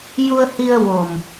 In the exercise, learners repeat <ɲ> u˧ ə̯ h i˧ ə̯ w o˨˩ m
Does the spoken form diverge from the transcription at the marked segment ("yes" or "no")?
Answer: yes